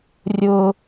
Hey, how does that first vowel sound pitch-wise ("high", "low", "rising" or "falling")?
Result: high